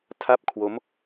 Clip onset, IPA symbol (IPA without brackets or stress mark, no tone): tʰ